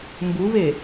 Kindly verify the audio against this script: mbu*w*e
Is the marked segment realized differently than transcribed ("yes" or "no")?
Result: yes